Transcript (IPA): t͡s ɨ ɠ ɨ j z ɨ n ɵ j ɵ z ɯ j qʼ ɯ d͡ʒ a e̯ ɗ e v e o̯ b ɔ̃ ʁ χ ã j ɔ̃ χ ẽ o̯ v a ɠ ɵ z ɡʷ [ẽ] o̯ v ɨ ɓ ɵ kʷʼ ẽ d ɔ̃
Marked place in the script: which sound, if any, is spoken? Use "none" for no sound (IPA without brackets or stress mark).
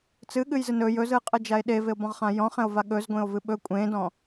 ẽ